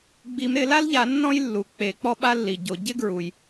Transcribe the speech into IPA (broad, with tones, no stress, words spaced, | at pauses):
ɡ͡bi˨˩˦mɾɪ˨˩˦la˥lʎa˨˩˦ nːɔ̃˥jlːu˩k͡pe˨˩˦ k͡pɔ˥ɓa˥lːi˩ɟo˨˩˦ ɟɪ˥ɡɹu˩j